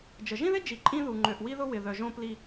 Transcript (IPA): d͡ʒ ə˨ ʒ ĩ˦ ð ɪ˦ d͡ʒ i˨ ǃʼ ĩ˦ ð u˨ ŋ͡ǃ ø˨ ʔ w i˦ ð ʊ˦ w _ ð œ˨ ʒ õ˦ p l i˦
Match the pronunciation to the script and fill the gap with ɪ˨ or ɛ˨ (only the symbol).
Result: ɪ˨